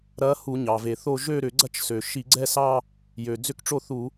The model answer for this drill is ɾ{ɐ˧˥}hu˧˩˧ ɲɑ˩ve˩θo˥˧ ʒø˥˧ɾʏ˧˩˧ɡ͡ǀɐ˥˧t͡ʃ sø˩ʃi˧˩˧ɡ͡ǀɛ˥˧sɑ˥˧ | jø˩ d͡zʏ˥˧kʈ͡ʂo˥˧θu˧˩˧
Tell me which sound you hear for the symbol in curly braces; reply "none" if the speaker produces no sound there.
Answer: ɐ˧˥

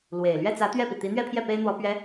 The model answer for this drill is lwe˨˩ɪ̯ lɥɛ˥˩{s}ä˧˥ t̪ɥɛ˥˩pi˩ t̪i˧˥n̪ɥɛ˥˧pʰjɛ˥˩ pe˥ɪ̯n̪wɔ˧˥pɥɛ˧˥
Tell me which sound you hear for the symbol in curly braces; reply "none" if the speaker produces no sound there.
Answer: t͡s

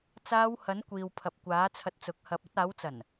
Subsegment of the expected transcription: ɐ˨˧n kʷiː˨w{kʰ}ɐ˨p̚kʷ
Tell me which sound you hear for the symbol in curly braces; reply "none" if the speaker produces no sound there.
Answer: pʰ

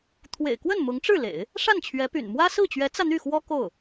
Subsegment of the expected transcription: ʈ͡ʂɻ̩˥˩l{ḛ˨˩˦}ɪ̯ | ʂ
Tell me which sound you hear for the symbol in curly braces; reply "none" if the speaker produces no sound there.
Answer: ḛ˨˩˦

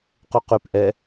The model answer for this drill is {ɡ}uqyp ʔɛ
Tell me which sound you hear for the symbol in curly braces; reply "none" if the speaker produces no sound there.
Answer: q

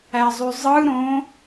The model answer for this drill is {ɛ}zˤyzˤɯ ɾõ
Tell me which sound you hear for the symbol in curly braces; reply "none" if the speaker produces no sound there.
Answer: æ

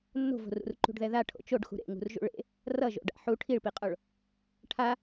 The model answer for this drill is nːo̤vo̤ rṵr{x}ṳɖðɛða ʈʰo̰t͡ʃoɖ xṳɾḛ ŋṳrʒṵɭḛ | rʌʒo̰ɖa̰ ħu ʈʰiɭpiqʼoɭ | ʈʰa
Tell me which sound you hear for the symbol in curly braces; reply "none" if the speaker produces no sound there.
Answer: ǃ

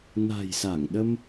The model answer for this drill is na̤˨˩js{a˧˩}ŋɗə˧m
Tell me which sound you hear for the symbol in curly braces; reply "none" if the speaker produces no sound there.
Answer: a˧˩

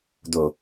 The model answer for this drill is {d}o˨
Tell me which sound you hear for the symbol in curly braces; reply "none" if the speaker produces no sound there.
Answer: d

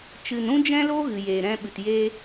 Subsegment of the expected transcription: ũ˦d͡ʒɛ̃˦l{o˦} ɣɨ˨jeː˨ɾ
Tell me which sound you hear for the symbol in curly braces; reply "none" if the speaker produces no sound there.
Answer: o˦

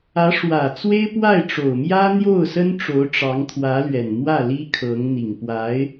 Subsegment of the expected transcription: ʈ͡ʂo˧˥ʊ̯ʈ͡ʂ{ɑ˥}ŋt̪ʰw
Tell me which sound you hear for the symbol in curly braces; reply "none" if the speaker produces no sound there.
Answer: ɑ˧˥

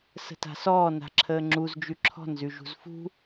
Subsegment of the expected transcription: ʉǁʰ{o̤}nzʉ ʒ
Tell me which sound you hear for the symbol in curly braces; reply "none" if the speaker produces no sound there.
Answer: ɔ̤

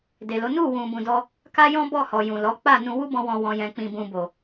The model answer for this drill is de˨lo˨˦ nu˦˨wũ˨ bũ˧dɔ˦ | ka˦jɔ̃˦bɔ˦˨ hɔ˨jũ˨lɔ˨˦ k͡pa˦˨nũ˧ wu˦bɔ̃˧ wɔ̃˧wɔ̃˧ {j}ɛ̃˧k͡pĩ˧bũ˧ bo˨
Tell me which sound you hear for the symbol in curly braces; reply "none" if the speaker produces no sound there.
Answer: j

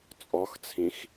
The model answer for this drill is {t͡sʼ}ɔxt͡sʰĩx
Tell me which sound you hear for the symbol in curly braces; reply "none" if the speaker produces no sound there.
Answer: t͡sʼ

